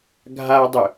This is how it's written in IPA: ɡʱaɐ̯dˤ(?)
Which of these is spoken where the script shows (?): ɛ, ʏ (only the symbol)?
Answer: ʏ